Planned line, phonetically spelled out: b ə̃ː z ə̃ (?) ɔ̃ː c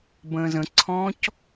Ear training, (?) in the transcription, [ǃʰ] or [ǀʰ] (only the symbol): ǀʰ